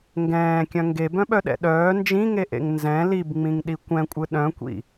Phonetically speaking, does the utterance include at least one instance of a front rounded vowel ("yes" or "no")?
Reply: yes